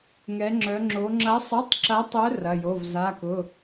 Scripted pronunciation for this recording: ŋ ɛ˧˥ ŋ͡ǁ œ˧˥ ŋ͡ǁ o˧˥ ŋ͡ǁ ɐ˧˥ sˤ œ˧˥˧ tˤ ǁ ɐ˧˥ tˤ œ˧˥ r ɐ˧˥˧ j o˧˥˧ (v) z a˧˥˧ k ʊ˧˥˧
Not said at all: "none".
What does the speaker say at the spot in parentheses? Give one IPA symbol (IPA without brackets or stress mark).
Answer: v